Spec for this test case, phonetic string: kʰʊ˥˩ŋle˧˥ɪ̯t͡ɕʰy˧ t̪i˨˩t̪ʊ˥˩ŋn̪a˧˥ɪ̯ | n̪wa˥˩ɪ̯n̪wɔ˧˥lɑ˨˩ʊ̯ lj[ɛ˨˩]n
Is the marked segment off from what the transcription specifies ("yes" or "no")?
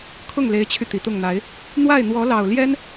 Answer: yes